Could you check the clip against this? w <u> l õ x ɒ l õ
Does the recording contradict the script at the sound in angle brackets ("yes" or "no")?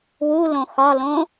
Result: no